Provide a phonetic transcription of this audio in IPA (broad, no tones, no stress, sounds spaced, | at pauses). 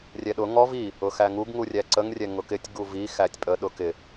rʲ ɛ ɗ ʊ ŋ ɔ v i | ʊ x æ ŋ u ɡ ŋ u rʲ æ ǀ ə ŋ rʲ ɛ ŋ ʊ k ɪ tʲ ɡ u v i x æ tʲ pʼ ə ɗ ʊ k ɪ